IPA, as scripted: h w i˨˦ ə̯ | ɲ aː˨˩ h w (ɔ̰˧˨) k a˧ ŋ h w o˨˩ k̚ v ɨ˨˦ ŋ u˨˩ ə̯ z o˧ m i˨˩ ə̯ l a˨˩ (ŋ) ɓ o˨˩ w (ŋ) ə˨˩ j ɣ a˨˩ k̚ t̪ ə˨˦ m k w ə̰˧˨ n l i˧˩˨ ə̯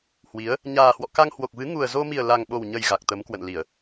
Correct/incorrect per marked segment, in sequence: correct, correct, incorrect

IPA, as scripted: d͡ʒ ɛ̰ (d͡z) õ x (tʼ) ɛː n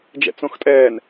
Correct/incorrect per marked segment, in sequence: incorrect, correct

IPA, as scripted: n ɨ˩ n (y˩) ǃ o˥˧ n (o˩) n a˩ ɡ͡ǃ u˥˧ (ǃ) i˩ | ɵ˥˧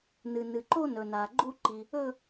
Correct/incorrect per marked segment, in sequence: incorrect, incorrect, correct

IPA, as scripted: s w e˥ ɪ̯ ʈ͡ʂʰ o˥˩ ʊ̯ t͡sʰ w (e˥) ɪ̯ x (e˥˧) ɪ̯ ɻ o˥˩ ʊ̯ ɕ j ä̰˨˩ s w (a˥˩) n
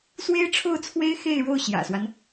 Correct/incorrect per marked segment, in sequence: correct, correct, incorrect

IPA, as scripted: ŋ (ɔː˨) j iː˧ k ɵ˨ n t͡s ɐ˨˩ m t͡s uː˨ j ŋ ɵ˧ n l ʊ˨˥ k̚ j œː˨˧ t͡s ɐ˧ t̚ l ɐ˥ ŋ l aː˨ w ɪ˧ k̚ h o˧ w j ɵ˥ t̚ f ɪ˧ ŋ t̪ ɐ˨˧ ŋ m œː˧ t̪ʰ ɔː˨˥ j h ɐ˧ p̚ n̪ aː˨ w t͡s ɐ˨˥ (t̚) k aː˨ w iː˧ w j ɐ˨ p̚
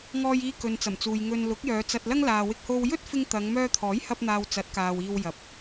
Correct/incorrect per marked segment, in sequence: incorrect, correct

